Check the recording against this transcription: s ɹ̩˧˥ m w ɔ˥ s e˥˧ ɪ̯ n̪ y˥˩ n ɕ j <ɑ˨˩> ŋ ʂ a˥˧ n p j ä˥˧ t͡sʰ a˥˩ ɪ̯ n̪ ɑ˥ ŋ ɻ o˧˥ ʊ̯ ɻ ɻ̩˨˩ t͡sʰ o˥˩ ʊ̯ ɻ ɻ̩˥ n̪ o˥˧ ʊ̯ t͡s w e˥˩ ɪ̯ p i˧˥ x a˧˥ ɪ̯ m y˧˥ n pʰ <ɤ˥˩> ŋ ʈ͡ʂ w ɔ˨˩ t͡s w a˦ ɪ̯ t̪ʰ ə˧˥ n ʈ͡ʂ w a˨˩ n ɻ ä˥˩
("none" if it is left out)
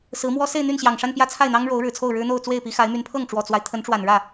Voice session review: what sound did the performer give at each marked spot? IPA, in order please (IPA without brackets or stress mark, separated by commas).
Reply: ɑ˨˩, ɤ˥˩